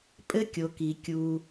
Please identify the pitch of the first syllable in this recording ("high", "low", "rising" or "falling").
high